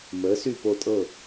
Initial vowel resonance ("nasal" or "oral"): oral